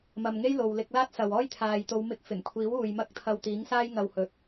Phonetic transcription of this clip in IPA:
m ɐ˨ m ŋ e˥ j l o˨ w l ɪ˧ k̚ l aː˥ t̚ s ɐ˨ w ɔː˥ j t̪ʰ aː˨ j t̪ o˨˧ w m ɪ˧ k̚ f ɪ˨˩ ŋ kʷʰ iː˨˥ w uː˨ j m ɐ˥ k̚ t̪ʰ ɐ˧ w t̪ iː˨˥ ŋ s aː˥ j ŋ ɐ˧ w h ɵ˨˥ t̚

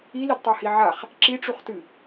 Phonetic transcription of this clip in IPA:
i l i d tˤ a h i ʕ a χ | ǁ i ʈ͡ʂ u χ t ɨ

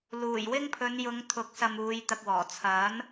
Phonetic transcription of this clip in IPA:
l uː˨˩ j w ɪ˥ ŋ pʰ ɵ˨˧ n j ʊ˨˧ ŋ t̪ʰ ʊ˨˥ k̚ s ɐ˧ m uː˨˧ j t̪ ɐ˨ k̚ w ɔː˨˩ t͡sʰ ɐ˨˥ n

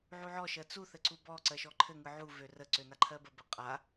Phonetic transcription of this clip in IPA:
ʕ u ʕ ɔ ʃ ɜ t͡s u θ ɘ ǀ u b ɔ ǀ ɜ ʃ ɔ ǃʰ ɘ ŋ ɯ ʕ u v ø r ə ǀ ø n a ǃʰ ɜ b ə b ɘ qʼ a

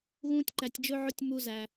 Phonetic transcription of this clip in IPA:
ɣ ũː˧ tʲ ǃ æ˨ tʲ d͡ʒ ɵ˧ ʕ ɵ˧ tʲ m u˧ z æ˨

